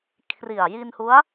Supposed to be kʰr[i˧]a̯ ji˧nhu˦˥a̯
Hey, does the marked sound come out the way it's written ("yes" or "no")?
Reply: no